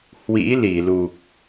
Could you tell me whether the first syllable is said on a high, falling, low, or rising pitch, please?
rising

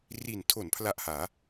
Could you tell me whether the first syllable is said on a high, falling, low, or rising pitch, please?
low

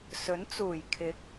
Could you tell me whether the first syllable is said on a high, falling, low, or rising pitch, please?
rising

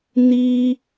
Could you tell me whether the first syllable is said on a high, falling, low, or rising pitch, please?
high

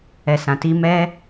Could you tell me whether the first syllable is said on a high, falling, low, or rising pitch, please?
low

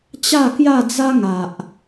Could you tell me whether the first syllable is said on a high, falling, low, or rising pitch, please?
falling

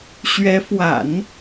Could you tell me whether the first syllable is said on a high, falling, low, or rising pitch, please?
rising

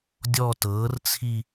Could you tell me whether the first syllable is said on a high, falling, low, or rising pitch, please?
falling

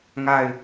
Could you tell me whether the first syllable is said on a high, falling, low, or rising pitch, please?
falling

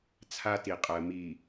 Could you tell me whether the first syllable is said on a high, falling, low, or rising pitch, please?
high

